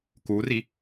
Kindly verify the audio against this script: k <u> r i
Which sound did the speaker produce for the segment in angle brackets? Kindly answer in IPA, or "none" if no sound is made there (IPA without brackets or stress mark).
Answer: u